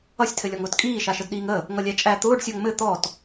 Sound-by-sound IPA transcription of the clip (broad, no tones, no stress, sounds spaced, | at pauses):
ʌ sʲ tʰ ɘ lʲ ɔ ŋ ʊː t kʼ iː ʃ a ʃ ə d ɗ iː ŋ ə | ŋ ʌ lʲ æ t͡ʃʼ æ t̪ ʊː ɖ sʲ ɔ ŋ m ɘ t̪ ɔ t